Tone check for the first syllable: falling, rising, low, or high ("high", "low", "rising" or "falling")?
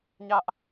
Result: high